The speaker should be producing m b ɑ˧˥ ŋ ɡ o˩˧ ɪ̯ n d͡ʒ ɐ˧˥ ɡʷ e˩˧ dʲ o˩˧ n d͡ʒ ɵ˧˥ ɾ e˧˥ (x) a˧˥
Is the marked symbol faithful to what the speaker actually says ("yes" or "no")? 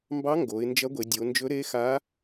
yes